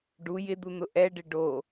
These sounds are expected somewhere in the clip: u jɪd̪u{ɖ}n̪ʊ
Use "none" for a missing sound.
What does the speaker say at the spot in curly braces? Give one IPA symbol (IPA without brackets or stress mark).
none